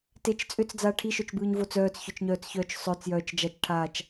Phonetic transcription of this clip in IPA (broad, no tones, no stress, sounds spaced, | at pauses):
t e t͡ʃ t͡sʼ ʏ t͡s d͡z aː ʈʰ i ʃ œ t͡ʃ b ɯː ɲ v o t͡s œː t͡s ç œ t͡ʃ ɲ œː t͡s ç œː t͡ʃ sˤ œ t͡s j œː t͡ʃ d͡ʒ a t͡ʃ ʈʰ aː t͡ʃ